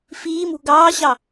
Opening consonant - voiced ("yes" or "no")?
no